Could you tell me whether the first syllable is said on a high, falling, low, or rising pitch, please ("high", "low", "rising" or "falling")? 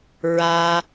high